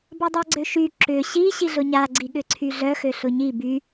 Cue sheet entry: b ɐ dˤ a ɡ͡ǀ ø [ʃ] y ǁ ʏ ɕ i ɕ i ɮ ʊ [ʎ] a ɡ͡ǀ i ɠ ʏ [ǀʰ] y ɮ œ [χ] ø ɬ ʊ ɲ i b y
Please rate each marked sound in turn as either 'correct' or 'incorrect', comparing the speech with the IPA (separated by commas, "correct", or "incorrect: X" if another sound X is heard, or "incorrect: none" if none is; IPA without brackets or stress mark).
correct, incorrect: ɲ, correct, incorrect: x